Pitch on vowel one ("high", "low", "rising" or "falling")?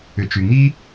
low